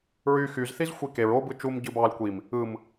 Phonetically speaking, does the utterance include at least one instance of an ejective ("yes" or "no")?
no